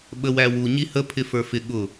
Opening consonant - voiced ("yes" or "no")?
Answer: yes